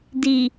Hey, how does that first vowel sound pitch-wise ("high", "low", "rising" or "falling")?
low